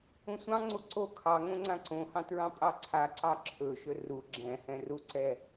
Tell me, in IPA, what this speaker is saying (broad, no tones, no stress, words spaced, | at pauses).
ũsʷɑ̃ŋ͡ǀu ǀo kʰɑ ŋõŋ͡ǀãǀõhɑ̃ tɹɑ̃pʼɑǀʰaǀɑ ǁʰɵʃɵ ru ɡ͡ǁɛ̃ hɛ̃ruǀɛ